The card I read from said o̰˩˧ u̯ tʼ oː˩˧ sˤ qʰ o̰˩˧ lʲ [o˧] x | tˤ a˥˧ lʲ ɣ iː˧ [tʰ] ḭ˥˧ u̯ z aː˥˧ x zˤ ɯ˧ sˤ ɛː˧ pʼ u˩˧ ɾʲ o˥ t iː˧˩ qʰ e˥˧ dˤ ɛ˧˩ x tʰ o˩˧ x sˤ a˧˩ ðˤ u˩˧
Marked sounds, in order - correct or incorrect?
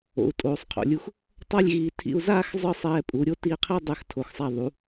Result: incorrect, correct

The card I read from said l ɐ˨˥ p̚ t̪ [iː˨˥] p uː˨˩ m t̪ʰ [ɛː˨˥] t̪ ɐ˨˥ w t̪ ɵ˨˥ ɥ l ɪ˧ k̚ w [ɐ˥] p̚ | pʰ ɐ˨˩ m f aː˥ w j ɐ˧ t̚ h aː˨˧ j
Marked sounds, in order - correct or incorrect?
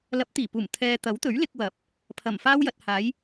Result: incorrect, incorrect, incorrect

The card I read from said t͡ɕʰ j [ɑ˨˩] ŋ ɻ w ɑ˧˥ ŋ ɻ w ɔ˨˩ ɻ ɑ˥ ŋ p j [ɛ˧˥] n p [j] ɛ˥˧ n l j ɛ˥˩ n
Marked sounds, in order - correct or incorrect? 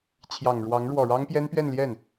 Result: correct, incorrect, incorrect

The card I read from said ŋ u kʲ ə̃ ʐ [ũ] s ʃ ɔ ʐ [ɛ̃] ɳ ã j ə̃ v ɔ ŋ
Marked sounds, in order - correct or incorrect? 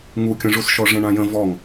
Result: incorrect, correct

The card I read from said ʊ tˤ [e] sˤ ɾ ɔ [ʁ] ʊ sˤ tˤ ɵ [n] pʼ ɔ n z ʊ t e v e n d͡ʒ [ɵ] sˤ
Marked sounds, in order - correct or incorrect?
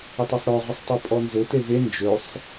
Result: incorrect, correct, incorrect, correct

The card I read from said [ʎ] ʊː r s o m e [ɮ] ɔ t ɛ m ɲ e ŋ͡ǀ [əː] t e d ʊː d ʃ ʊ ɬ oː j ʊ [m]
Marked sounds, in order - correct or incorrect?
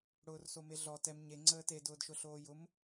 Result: incorrect, correct, correct, correct

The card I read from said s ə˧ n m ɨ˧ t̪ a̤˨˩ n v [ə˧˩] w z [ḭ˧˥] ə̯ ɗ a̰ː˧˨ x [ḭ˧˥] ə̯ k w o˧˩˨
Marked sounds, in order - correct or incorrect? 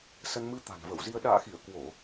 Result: correct, incorrect, incorrect

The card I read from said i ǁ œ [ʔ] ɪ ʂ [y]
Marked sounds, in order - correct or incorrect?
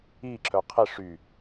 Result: incorrect, correct

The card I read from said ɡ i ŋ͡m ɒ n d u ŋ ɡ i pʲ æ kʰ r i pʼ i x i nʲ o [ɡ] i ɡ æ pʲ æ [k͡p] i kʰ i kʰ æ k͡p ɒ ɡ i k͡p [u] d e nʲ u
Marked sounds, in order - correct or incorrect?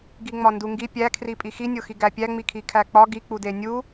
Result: incorrect, incorrect, correct

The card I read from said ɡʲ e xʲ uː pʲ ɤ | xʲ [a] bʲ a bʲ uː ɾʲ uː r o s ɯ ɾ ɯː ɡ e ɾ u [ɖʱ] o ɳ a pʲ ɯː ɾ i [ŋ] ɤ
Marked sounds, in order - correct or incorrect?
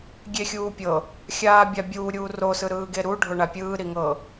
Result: incorrect, correct, correct

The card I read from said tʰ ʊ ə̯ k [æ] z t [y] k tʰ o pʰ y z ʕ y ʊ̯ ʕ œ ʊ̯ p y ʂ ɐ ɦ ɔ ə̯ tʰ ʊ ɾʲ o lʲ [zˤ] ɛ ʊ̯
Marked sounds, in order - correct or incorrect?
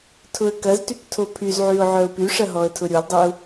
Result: incorrect, correct, incorrect

